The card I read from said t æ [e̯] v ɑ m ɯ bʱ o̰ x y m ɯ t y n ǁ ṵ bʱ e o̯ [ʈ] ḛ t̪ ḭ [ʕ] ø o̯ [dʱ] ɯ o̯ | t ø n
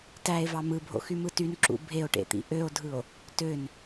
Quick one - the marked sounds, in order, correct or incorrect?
correct, correct, incorrect, correct

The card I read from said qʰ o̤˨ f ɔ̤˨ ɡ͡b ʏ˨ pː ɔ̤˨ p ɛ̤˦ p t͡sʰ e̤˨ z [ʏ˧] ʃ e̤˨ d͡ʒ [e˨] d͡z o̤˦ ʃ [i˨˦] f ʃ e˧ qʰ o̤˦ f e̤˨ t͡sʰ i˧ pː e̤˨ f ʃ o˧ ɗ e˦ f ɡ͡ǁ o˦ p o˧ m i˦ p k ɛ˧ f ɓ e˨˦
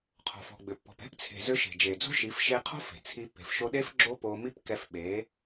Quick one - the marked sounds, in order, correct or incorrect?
correct, correct, correct

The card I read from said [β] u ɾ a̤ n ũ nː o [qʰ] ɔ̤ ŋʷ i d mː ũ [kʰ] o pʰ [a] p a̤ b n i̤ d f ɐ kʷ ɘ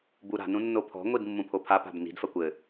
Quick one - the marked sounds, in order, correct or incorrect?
incorrect, incorrect, incorrect, correct

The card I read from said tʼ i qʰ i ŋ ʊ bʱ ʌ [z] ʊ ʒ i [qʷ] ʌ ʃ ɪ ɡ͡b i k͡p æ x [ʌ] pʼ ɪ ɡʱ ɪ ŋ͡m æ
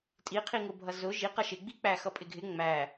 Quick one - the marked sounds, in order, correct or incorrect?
correct, incorrect, correct

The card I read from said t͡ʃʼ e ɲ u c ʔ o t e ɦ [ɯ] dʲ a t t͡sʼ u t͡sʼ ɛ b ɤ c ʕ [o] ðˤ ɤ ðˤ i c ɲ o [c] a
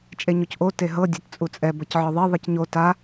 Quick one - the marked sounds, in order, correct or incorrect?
incorrect, incorrect, incorrect

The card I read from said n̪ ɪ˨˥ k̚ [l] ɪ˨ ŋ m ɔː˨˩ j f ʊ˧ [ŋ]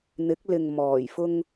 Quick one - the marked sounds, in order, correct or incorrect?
correct, correct

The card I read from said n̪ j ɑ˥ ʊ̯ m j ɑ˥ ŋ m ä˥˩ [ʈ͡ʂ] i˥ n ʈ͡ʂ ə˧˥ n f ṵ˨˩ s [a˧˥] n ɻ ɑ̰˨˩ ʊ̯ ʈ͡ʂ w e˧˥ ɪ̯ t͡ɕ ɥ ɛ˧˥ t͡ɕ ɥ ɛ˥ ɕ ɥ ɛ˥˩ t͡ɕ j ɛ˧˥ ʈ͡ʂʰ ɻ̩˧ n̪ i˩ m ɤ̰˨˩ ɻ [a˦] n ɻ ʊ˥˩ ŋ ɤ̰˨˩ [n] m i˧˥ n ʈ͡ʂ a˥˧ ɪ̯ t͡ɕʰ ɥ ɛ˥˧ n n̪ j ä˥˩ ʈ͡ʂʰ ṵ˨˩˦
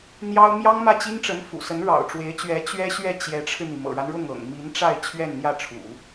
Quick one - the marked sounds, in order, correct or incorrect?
incorrect, incorrect, correct, incorrect

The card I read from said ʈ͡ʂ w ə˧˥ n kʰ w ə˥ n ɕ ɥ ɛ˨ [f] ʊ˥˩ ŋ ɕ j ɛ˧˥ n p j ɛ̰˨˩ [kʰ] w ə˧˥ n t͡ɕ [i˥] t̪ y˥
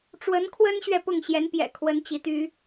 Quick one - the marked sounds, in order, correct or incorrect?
incorrect, correct, incorrect

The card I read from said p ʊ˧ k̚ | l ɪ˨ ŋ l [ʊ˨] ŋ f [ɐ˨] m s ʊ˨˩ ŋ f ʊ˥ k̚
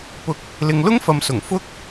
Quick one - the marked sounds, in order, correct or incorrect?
incorrect, correct

